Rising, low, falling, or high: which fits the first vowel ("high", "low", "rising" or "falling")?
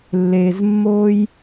low